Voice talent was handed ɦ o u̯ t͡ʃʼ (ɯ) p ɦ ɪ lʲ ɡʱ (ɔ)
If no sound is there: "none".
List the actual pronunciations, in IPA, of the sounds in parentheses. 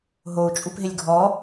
u, ɔ

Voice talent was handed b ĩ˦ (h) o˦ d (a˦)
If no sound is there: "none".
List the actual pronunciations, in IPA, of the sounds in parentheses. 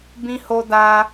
h, a˦

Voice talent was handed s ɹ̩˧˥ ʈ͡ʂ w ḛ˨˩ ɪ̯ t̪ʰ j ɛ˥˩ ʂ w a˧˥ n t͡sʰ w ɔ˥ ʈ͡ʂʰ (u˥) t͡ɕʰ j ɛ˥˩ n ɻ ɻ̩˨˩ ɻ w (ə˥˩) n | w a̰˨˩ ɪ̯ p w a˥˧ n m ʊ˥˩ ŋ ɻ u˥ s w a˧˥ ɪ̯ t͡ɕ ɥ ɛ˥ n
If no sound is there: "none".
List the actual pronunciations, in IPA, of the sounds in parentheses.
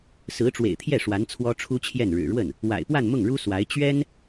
u˥, ə˥˩

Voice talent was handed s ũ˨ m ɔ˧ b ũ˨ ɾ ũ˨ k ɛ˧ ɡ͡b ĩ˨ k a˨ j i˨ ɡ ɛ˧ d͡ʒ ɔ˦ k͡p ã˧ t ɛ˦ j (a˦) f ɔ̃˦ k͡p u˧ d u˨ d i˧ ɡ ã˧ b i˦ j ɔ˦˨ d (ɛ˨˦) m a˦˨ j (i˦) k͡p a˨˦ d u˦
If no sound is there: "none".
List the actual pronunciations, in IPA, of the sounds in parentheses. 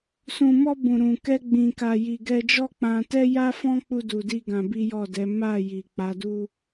a˦, ɛ˨˦, i˨

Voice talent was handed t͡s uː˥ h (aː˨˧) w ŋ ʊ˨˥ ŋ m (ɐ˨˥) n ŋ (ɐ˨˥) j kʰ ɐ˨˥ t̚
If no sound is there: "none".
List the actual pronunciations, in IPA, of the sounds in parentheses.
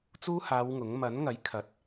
aː˨˧, ɐ˨˥, ɐ˨˥

